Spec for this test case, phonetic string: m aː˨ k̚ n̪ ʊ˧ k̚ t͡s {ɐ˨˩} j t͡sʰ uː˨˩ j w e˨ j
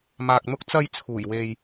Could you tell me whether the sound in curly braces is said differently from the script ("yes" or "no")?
yes